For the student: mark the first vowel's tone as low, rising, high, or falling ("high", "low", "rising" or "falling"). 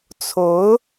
rising